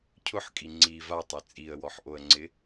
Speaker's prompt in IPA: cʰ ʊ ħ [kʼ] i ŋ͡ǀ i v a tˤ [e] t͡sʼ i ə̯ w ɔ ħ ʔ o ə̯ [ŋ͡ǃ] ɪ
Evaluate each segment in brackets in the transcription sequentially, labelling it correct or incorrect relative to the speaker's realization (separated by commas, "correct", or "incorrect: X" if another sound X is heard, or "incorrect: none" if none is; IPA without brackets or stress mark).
correct, correct, incorrect: ŋ͡ǀ